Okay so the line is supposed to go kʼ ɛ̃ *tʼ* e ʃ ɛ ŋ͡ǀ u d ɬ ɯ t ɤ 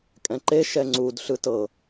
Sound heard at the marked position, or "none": ǃ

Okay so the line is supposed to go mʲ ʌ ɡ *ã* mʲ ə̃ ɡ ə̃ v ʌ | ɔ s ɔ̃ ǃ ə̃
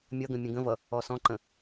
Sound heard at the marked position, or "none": ə̃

